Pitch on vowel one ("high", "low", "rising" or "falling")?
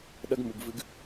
high